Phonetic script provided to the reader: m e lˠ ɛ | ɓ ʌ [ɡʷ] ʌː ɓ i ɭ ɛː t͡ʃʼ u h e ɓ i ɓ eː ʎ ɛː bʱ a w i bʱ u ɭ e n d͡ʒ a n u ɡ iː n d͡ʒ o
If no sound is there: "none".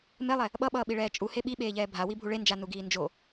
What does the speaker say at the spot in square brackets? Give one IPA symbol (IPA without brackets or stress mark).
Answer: ɓ